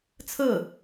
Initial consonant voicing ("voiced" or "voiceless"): voiceless